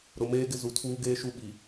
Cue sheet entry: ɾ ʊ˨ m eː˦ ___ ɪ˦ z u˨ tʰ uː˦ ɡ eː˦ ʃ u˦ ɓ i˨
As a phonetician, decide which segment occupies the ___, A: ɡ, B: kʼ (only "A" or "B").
A